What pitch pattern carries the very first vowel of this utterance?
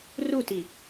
falling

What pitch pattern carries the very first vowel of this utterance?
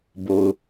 low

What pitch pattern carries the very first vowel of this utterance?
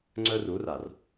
high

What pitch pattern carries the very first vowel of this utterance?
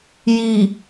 low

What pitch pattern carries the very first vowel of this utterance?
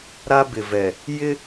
high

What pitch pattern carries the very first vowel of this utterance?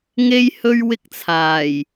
high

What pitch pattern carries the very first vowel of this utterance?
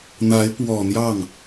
rising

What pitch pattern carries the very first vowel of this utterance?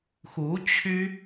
rising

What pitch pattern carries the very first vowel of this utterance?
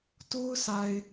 high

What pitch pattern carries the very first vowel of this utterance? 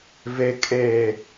low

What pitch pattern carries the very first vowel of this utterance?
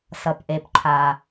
low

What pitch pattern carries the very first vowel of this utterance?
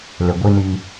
low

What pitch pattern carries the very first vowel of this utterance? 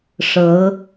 rising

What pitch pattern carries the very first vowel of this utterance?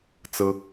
high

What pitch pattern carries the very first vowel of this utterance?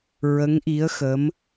rising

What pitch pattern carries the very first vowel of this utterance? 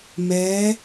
rising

